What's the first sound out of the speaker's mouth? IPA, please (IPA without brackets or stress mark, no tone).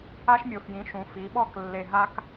a